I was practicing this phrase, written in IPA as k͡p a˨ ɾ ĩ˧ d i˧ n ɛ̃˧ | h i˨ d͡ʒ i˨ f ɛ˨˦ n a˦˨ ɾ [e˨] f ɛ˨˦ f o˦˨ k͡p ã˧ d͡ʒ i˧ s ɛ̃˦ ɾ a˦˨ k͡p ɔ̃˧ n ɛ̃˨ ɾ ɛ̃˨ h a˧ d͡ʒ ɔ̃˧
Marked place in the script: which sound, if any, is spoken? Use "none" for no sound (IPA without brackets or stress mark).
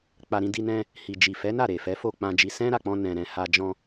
e˨